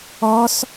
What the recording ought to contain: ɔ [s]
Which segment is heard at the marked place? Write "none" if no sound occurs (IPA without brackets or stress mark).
s